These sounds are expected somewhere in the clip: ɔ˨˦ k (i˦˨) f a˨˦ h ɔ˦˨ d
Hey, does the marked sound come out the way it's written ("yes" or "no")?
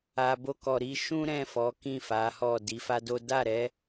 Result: no